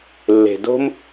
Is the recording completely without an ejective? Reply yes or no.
yes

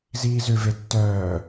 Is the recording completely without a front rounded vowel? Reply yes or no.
no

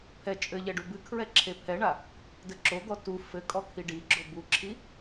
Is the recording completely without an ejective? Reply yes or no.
no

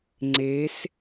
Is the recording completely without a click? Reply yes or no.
no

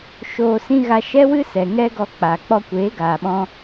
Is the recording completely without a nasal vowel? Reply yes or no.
no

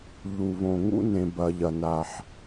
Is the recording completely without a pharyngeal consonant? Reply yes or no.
no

